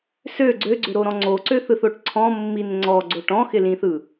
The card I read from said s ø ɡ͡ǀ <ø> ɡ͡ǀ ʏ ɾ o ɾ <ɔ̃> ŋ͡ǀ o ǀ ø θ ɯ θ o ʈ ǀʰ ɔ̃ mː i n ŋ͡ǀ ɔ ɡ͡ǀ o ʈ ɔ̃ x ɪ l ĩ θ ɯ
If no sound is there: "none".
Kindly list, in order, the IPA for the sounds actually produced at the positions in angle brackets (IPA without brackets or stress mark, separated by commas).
ø, ɔ̃